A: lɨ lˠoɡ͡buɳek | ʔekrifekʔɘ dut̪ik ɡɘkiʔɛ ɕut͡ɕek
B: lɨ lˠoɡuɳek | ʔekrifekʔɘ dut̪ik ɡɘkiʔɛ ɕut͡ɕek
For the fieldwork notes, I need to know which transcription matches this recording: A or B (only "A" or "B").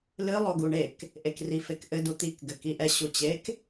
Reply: B